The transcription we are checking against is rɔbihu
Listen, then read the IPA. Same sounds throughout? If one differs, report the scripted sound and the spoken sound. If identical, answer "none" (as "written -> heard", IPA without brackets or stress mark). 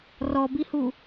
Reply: none